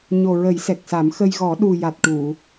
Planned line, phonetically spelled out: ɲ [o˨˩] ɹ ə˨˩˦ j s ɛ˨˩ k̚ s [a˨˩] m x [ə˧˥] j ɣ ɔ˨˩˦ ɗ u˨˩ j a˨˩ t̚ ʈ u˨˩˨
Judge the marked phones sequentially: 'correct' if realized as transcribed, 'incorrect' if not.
correct, incorrect, incorrect

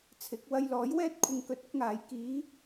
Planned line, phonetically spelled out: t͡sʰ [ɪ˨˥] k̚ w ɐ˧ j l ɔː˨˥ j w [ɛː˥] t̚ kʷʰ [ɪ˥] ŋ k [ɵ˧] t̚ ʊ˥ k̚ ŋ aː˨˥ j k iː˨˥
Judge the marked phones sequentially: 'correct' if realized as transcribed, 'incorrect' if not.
correct, correct, incorrect, correct

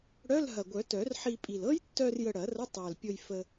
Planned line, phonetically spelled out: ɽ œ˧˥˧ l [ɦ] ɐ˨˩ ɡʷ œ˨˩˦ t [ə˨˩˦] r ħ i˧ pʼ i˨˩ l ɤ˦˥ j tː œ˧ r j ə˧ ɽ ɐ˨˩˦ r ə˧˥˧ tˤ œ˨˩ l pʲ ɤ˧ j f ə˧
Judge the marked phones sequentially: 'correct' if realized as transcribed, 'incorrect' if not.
correct, incorrect

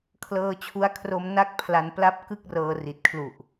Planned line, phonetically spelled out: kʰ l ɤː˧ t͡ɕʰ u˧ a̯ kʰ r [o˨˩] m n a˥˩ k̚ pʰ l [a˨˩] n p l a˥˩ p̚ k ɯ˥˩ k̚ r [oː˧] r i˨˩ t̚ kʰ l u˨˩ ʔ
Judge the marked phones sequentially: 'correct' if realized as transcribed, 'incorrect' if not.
incorrect, incorrect, incorrect

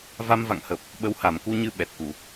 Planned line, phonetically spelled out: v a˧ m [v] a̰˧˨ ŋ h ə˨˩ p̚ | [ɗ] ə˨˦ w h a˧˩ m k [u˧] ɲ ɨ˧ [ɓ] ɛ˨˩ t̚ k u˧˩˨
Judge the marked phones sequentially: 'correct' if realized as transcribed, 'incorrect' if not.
correct, incorrect, correct, correct

